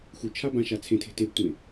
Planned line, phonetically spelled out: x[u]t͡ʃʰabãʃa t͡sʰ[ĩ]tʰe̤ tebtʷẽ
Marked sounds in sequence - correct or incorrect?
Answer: correct, incorrect

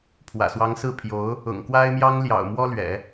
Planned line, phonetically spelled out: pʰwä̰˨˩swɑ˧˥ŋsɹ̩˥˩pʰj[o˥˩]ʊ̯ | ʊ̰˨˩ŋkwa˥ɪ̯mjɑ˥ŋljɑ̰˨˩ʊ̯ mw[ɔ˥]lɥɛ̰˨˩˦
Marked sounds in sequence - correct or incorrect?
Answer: incorrect, correct

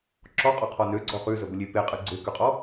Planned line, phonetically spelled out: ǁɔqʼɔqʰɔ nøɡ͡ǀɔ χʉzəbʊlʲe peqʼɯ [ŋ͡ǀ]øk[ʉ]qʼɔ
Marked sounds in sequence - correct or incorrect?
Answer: incorrect, correct

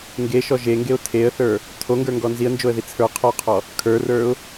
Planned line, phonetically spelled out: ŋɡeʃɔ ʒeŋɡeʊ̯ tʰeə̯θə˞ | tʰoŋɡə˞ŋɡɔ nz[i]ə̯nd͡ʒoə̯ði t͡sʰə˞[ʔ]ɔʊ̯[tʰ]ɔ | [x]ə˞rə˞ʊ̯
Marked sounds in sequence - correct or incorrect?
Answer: correct, incorrect, incorrect, incorrect

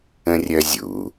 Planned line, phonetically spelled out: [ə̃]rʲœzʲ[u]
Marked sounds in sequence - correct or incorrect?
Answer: correct, incorrect

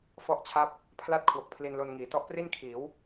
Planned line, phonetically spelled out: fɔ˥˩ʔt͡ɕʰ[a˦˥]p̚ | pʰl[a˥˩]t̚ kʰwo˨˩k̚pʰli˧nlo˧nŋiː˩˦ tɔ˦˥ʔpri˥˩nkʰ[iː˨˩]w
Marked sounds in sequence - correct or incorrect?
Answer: incorrect, correct, incorrect

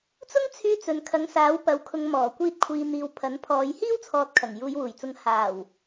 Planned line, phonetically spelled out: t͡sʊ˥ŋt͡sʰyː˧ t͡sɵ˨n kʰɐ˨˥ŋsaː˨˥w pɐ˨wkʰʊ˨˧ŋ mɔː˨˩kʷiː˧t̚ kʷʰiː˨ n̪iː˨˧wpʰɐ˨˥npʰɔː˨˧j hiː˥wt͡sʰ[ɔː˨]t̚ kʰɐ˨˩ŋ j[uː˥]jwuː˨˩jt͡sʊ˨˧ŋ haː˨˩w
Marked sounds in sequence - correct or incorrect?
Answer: correct, incorrect

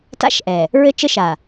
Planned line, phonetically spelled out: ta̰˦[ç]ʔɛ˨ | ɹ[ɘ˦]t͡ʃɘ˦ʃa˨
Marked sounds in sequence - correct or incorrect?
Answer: incorrect, correct

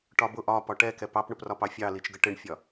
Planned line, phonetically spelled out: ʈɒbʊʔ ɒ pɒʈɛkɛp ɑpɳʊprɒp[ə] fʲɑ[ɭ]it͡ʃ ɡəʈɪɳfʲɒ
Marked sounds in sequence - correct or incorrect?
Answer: incorrect, incorrect

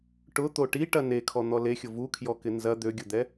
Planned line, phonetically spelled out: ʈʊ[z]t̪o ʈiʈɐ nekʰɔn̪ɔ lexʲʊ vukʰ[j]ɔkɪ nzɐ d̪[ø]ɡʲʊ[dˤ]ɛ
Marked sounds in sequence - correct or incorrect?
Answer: incorrect, correct, correct, incorrect

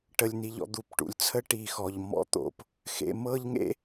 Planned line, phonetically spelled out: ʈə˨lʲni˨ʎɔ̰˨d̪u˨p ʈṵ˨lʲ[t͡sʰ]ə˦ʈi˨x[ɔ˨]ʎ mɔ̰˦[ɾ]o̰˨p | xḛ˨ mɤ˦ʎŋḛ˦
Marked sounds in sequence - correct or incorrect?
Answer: correct, correct, incorrect

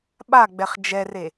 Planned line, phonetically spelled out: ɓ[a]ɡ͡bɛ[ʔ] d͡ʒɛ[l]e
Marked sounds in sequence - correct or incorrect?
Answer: correct, incorrect, incorrect

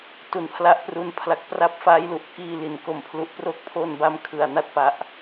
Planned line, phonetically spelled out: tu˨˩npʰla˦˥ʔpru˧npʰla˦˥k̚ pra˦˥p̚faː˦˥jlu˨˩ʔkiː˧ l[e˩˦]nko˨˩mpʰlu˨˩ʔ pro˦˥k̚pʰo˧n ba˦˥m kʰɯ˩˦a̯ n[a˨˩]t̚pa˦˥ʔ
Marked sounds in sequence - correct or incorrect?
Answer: incorrect, incorrect

